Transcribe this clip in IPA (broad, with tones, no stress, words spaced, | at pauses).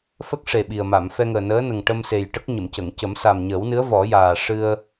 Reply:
fə˦˥k̚ʂe˨˩ ɓi˨˩ə̯ma˨˩˨m fɛ˧ŋəː˨˩nəː˧˥nə˨˩ŋ ʈə˧mse˨˩j ʈə˦˥k̚ɲə˨˩˨mcə˨˩˨ŋ cə˨˩˦msa˨˩mɲəː˨˩˦wnɨ˧˥ə̯ vɔ˨˩˦jaː˨˩ ʂɨ˧ə̯